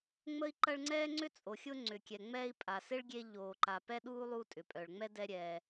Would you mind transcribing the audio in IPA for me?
ŋ͡m ə˦ i̯ ǃ ɐ˦ ɭ ŋ͡ǀ ɛː˥ ŋ͡ǀ ʏ˥ t͡sʼ o˩ xʲ ʊ˦ ŋ͡ǀ ʏ˩ kʲ ɛ˩ ŋ͡m ɛː˦ i̯ pʼ a˩ s ɪ˥ ɭ ɡʲ e˦ ʎ oː˩ ǃ a˩ p ɛ˥ ɗ uː˥ lˠ u˦ tʼ ʏ˩ pʼ œ˩ ɭ ŋ͡m ɛ˥ d ɛ˦ ɾʲ ɛː˩

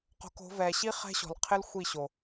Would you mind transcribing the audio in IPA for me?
q o̤˧ k o̤˨˦ v ɛ˨ ɕ i˦ χ ɛ̤˦ ɕ ɔ̤˨ l qʰ ɪ˦ l xʷ i˦˨ ɕ o˨

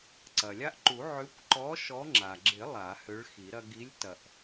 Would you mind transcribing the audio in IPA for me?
ǀ ɐ˩ lʲ a˦ ʔ ǃ u˨˩˦ ʕ ʏ˨˥ kʷ ǃ ɔ˨˥ ʃ ɔ˨˥ ŋ͡ǁ a˩ ɡ͡ǁ ɪ˨˩˦ lˠ a˨˩˦ h ø˨˥ ɭ x i˨˩˦ ɾ ɐ˦ ɡ i˨˥ lʲ t ɐ˩ ʔ

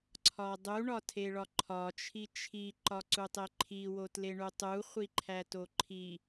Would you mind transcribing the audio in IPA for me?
ǀʰ ɒ dˤ u ɳ ɒ tʰ e ɭ ɒ ǃʰ ɒ t͡ʃʰ i t͡ʃʰ i ǃ ɒ ǀ u tˤ e ǃʰ i w o t l e ɳ u tˤ u χʷ i ǃʰ æ t o ǃʰ i

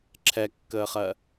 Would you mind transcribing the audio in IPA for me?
ǁʰ ɛ kː əː χ ɜ

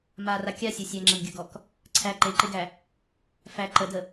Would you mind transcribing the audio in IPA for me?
m a r a kʲ a sʲ ɐ sʲ æ ŋ͡ǁ ɐ n ɡʲ ɐ ɡ ɔ k | ǀʰ æ ǃ e ǃ e ɡ æ | f æ ǃ ə d ə

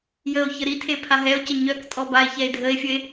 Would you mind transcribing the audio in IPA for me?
j ə o̯ ç ə ɾ i tʰ e pʰ a ɦ ɛ o̯ c ə ɲ œ k tʼ ɔ b a e̯ ç ɛ e̯ dʱ ə e̯ fʲ ə e̯

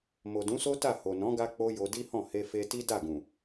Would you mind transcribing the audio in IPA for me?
m o˨ d ũ˨˦ s o˦ t a˦˨ h o˨ n ɔ̃˨˦ ɡ a˧ k͡p o˦ j o˧ d i˦ h ɔ̃˦˨ h e˧ f e˧ t i˦ d a˦˨ ɡ ũ˨

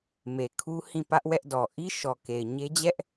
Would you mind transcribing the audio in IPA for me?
m e˨ kʰ u˦ h ĩ˦˨ p ä˦ ʔ w ɛ˦ ʔ d ɔ˨ ʔ i˦ ʃ ɔ˨ k e˨ ɪ̯ ɲ e˦ d͡ʑ ɛ˦ ʔ

